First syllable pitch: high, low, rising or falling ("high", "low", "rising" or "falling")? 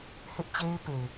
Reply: high